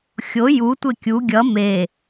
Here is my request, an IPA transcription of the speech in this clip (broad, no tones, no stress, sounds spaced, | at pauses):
xʲ o j u tʷ e kʲ u ɡʲ ʌ m e